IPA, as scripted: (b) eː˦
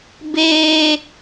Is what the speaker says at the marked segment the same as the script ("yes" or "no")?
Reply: yes